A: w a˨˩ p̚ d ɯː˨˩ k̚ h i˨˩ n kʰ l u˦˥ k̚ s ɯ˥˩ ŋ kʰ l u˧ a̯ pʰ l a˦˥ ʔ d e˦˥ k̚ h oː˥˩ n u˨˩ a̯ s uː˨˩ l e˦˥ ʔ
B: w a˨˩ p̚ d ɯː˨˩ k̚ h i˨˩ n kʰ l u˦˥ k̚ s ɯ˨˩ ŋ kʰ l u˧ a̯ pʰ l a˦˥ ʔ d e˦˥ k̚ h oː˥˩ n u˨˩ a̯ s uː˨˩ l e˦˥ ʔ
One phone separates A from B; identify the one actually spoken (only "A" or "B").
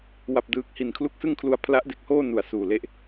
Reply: A